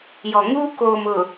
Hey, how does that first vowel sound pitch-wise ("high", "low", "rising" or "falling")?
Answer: low